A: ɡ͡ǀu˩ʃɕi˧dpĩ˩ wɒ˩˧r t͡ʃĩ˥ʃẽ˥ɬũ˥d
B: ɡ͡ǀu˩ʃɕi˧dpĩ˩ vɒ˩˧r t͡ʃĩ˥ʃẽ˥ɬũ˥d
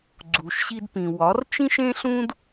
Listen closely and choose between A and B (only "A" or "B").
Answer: A